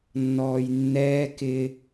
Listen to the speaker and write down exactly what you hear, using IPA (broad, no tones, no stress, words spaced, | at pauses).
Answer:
nːɔːjnːɛː kɪ